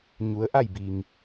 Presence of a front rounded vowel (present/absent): absent